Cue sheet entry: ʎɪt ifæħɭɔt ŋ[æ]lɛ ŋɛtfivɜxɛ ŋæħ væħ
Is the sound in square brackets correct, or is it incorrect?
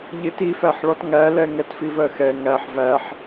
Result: correct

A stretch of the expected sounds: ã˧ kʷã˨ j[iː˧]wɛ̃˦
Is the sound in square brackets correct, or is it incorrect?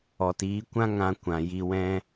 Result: incorrect: i˧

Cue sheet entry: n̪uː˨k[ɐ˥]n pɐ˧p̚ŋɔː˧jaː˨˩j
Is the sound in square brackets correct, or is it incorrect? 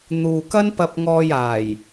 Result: correct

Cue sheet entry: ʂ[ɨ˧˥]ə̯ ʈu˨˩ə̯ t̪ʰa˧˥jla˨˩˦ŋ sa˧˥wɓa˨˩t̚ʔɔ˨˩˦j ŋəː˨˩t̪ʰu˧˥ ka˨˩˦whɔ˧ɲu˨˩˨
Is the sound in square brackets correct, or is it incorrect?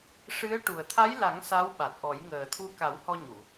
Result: correct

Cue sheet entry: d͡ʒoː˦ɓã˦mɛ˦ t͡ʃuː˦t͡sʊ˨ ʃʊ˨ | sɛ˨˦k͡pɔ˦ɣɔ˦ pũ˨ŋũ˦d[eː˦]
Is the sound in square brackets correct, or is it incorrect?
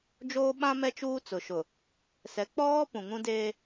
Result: correct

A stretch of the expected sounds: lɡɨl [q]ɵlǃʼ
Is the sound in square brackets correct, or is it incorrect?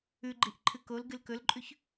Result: incorrect: k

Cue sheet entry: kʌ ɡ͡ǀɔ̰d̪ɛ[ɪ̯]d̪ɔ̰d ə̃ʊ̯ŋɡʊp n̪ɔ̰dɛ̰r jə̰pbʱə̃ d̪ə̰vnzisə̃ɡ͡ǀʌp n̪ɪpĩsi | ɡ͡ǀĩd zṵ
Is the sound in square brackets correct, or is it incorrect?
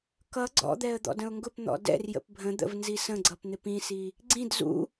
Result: incorrect: ə̯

